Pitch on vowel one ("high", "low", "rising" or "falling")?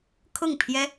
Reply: falling